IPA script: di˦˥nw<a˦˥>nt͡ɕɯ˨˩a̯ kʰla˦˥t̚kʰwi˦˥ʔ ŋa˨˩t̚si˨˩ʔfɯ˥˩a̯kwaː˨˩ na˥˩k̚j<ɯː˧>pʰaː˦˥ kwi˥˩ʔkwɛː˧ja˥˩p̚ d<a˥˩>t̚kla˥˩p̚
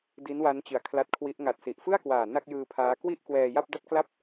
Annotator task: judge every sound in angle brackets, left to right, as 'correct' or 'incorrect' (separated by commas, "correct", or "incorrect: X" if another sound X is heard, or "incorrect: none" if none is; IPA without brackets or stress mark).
correct, correct, correct